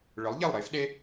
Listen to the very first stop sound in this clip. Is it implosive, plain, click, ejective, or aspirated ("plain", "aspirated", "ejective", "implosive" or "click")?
implosive